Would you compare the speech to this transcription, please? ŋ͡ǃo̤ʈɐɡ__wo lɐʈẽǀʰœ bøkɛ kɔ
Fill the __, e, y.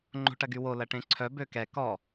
y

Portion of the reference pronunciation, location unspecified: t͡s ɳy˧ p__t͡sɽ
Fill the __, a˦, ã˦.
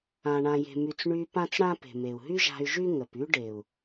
ã˦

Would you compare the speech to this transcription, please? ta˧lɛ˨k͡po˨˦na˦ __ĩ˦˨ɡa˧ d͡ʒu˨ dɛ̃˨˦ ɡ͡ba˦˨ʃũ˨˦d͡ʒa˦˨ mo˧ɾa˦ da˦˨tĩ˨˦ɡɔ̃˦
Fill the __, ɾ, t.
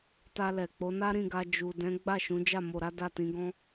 ɾ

